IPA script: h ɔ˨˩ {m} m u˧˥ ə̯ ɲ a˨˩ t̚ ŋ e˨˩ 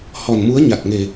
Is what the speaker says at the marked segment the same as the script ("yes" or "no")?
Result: no